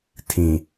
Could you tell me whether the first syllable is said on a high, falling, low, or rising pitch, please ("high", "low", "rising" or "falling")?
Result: low